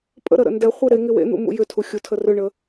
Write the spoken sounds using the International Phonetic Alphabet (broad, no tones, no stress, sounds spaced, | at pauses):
pʼ ə̰ ɾ ə ɾ ə̰ n d ɛ χʷ e ɾ e ŋ ɪ w ḛ n̪ ṵ m ṵ j ʏ tʰ u xʲ u tʰ ə r ʏ ɳ ə